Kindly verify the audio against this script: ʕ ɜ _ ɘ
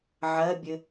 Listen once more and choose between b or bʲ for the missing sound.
bʲ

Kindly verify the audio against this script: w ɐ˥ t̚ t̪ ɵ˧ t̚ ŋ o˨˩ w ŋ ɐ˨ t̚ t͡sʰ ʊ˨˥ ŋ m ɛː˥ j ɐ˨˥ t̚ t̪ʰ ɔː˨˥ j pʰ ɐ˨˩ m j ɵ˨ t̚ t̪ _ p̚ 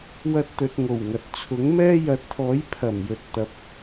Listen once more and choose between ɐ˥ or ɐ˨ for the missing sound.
ɐ˨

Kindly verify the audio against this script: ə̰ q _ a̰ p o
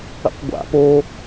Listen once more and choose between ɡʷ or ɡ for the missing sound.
ɡʷ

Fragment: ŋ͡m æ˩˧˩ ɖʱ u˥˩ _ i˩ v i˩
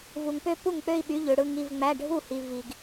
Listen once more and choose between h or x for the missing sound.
h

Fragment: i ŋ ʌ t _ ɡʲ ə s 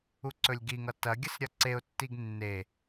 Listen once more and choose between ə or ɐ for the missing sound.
ɐ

